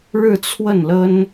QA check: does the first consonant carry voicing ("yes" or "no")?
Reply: yes